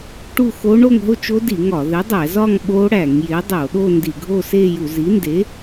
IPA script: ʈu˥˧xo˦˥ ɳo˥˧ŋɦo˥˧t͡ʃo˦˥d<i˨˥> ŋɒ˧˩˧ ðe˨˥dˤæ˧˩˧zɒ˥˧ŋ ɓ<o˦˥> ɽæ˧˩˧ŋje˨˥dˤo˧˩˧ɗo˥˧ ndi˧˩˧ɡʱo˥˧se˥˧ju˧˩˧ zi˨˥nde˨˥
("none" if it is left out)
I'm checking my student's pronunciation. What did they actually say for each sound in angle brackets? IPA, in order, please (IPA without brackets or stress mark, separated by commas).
i˧˩˧, o˦˥